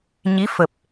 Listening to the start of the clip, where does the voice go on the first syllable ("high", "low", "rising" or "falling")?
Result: rising